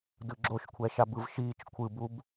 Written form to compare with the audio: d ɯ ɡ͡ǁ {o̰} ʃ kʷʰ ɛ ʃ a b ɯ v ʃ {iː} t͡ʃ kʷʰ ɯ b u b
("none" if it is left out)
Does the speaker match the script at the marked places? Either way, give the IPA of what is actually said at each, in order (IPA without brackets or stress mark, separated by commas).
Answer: o, iː